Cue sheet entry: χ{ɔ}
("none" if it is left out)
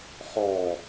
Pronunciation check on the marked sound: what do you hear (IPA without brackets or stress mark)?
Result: ɔ